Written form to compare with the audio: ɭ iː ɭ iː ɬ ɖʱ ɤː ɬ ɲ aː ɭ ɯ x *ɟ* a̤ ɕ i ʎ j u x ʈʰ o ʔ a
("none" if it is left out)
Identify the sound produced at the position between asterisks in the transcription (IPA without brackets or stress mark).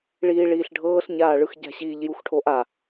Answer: ɟ